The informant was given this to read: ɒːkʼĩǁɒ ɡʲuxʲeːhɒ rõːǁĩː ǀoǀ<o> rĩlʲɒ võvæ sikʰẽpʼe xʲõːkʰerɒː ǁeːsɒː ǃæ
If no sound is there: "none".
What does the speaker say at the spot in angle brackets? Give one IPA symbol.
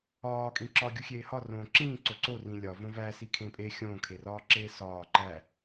o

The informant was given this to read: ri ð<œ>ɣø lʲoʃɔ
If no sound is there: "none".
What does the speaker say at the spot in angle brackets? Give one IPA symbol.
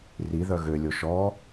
œ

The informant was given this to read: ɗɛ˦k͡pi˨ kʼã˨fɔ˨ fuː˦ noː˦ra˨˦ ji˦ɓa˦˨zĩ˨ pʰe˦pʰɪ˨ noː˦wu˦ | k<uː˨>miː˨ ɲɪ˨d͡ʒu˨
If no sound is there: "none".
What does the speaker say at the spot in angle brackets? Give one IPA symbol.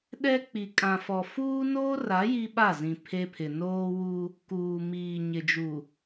uː˨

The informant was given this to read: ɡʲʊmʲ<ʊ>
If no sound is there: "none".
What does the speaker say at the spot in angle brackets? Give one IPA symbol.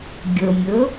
ʊ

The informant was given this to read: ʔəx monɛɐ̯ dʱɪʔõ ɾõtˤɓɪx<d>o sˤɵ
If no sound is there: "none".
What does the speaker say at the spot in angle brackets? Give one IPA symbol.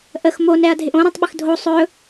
dʱ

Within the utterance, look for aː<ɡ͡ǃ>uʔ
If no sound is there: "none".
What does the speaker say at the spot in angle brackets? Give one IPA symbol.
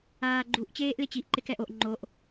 ɡ͡ǃ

